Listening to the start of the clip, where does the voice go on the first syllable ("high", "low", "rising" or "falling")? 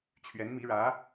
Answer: rising